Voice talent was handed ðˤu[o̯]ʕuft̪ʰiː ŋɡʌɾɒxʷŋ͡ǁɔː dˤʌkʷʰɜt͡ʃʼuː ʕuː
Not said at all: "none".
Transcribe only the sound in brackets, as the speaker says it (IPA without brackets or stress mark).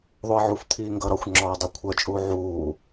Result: ɐ̯